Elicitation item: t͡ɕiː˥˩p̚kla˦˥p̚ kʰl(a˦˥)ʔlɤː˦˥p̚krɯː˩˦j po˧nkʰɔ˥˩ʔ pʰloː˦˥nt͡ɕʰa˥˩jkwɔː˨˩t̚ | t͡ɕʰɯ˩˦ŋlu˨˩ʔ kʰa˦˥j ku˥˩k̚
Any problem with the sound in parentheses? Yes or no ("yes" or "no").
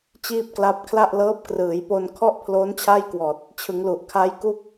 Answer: yes